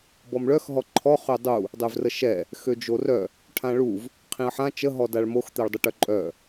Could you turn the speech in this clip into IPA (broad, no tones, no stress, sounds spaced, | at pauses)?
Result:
b ɔ m ɭ œ x ɦ ɔ ǃʰ ɔ χ ø dˤ u | dˤ ø v r ə ʃ ɛ | x ø d͡ʒ o r œ | ʈʰ ã ɭ u v | qʰ ĩ ɐ̯ ħ ã t͡ʃ ə ɦ ɔ d a ɭ m o x t̪ ɛ ɭ dˤ ə ʈ œ ǃʼ œ